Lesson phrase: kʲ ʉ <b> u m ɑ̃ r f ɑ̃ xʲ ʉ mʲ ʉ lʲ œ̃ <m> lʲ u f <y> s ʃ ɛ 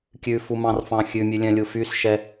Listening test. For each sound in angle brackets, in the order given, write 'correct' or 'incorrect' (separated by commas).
incorrect, incorrect, correct